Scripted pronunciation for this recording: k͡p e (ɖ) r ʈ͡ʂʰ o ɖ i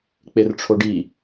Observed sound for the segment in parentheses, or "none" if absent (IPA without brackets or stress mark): none